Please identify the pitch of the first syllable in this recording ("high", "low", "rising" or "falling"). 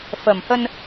low